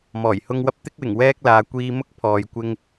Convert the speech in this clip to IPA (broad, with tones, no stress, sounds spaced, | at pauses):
m ɔː˨˩ j h ʊ˧ ŋ w ɐ˧ p̚ t̪ ɪ˥ k̚ w ɪ˨˩ ŋ w ɛː˥ k̚ l aː˨˧ kʷ iː˧ m ʊ˥ k̚ pʰ ɔː˨ j kʷ ɪ˧ ŋ